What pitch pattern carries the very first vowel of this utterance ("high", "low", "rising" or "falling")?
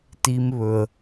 low